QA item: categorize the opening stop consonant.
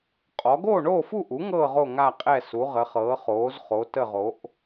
ejective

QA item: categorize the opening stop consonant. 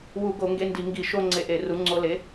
plain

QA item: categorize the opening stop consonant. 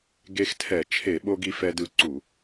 plain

